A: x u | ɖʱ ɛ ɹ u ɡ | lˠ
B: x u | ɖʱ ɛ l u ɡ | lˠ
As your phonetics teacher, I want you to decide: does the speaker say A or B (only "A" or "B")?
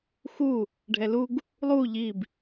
B